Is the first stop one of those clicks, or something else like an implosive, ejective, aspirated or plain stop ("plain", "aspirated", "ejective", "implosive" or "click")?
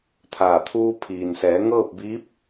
aspirated